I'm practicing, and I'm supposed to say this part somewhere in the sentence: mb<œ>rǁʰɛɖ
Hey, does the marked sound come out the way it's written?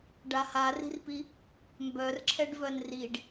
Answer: yes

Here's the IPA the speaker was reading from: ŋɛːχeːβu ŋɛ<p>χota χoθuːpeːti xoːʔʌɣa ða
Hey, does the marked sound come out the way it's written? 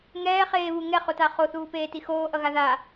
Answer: no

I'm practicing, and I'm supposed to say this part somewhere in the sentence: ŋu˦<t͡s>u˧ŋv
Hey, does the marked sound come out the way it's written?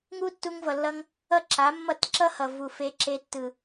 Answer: no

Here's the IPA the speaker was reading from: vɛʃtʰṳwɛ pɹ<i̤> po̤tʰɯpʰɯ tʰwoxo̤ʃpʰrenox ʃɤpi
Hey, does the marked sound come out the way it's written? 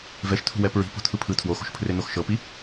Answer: yes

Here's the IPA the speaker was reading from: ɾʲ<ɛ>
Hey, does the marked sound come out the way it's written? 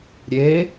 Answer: no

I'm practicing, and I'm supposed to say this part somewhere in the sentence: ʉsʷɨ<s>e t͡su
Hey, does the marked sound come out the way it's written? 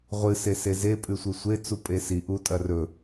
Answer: no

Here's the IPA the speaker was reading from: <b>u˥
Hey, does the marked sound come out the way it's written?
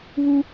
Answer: no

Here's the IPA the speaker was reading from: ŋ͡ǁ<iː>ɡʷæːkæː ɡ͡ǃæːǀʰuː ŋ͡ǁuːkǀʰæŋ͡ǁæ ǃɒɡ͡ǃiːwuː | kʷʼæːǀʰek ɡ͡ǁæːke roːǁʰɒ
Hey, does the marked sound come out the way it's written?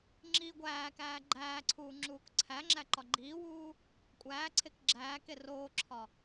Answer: yes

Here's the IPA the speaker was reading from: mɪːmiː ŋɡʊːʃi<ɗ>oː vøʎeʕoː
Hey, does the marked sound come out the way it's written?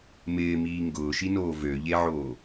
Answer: no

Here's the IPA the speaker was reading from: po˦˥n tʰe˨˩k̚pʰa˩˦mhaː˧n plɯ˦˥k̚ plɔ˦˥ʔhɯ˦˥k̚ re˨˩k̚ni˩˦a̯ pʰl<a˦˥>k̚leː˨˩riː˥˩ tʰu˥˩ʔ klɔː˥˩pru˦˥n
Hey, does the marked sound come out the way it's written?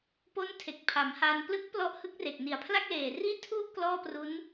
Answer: no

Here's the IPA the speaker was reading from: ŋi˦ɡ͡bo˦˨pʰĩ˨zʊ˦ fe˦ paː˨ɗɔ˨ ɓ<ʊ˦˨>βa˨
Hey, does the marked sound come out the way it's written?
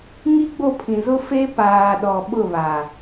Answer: yes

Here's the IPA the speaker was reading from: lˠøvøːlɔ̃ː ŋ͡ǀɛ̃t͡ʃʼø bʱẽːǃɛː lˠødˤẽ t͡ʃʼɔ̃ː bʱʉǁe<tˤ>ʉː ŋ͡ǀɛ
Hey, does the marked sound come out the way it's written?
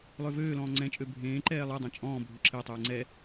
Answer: yes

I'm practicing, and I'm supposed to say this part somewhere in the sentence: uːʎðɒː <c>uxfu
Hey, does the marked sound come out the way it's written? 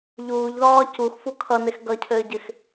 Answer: yes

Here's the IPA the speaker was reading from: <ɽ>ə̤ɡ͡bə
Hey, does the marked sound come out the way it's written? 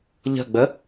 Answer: no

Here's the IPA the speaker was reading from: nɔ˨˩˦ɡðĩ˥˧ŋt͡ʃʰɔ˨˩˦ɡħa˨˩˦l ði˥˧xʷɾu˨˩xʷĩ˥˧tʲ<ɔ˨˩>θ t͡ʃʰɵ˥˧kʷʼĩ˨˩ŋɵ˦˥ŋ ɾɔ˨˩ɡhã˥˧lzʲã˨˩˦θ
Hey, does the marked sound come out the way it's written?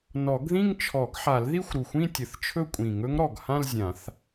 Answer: no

